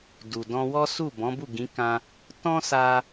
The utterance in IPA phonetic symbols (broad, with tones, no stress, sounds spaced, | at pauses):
d u˨ d ɔ̃˧ w ɔ˦ s u˦˨ b ɔ̃˨˦ b u˦˨ ɡ ĩ˨˦ k ã˧ | t ɔ̃˦ s a˧